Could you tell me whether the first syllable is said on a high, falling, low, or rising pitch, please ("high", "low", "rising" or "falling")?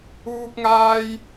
high